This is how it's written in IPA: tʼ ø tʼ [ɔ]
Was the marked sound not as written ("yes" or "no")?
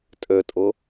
yes